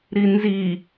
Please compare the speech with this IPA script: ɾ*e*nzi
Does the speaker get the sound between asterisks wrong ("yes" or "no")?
yes